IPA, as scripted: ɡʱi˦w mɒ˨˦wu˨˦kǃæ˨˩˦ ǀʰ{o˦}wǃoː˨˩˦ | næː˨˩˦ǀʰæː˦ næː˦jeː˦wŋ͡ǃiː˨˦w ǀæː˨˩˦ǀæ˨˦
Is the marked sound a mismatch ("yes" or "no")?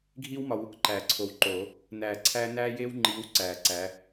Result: yes